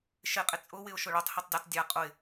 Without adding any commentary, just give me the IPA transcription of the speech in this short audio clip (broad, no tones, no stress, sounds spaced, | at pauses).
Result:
ʃ ɪ qʼ ɪ t͡sʼ ʊ w ɪ ʊ̯ ʃ ʊ ɭ o tˤ h i tˤ dʲ ʊ tˤ dʲ a qʼ ʊ ɪ̯